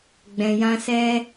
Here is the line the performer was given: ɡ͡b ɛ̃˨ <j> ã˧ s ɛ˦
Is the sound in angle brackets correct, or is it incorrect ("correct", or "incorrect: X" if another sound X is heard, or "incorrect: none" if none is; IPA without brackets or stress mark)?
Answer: correct